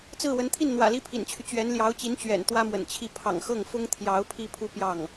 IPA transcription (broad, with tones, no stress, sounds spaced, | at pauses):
t͡s ɹ̩˥˩ w ə˧˥ n t̪ʰ i˥˩ n n̪ w ä̰˨˩ l i˥ pʰ ḭ˨˩ n t͡ɕʰ y˦ t͡ɕ ɥ ɛ˧˥ n l j ɑ˧˥ ʊ̯ t͡ɕ i˧˥ n t͡ɕ ɥ ɛ̰˨˩ n t̪ w ä˥ m w ə̰˨˩ n t͡ɕʰ i˥˩ pʰ ɑ̰˨˩ ŋ x ɤ˥˩ ŋ f ʊ˥ ŋ t̪ʰ j ɑ˧˥ ʊ̯ pʰ i˥ pʰ u˥ p j ɑ˥˩ ŋ